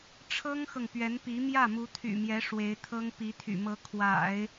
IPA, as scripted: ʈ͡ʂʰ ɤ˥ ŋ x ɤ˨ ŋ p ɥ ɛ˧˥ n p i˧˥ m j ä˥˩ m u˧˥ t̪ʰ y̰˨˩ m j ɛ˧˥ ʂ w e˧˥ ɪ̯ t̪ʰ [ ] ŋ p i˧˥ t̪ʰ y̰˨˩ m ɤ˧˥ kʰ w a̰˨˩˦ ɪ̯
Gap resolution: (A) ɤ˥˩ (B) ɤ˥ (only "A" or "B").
B